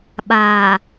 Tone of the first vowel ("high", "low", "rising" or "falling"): low